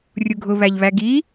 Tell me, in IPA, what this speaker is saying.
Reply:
rʲ u ɡʱ ʊ β æ ʎ β æ ɡ i

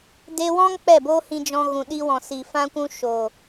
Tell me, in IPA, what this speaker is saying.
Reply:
d e˧ w ɔ̃˦ ŋ k͡p ɛ˦˨ b o˦ h ĩ˧ d͡ʒ ɔ̃˧ ɣ ũ˨ ɗ i˧ w ɔ̃˨ s i˨ f ã˧ kʷ ũ˧ ʃ o˨

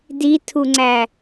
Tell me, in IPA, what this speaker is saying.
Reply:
d i tʰ u ŋ͡ǀ æ

